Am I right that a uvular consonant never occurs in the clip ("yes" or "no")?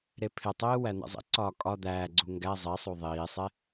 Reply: yes